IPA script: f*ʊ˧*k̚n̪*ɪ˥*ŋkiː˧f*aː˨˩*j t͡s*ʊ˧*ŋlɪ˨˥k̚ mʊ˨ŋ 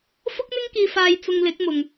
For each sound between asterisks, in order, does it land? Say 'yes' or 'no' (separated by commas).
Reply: no, yes, no, yes